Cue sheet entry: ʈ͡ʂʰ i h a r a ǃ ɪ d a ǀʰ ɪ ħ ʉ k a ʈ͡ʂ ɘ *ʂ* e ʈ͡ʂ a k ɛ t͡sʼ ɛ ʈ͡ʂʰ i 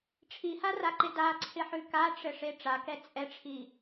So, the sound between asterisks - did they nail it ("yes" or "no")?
yes